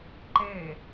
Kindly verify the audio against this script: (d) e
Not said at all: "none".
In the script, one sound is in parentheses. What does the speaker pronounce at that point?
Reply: ǃ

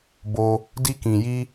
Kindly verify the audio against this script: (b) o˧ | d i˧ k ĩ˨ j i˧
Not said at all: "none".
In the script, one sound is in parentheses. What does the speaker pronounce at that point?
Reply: b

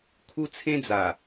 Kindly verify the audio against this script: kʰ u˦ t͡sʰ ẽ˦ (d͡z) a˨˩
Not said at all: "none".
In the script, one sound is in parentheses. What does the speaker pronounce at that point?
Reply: d͡z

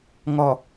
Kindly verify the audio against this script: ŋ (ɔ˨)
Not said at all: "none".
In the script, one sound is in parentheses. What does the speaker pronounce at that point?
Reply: ɔ˨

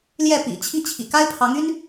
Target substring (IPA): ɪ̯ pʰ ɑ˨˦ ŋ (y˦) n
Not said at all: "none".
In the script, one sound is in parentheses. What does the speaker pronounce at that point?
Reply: y˦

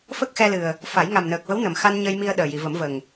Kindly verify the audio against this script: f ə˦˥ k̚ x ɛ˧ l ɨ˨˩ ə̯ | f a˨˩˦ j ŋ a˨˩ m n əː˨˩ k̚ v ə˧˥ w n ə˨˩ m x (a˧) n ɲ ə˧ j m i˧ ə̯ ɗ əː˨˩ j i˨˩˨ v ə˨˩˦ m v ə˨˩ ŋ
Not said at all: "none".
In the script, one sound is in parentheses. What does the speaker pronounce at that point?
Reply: a˧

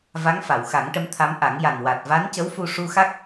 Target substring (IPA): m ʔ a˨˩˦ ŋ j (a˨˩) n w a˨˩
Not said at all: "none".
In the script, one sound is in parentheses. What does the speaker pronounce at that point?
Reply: a˨˩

